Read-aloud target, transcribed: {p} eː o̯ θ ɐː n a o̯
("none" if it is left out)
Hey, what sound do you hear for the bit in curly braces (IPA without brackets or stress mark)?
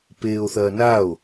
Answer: p